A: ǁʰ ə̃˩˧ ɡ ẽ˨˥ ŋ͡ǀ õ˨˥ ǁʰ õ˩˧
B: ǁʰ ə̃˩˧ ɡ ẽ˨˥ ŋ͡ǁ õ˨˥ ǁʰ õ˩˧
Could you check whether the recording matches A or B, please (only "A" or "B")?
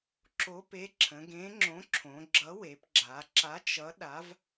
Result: B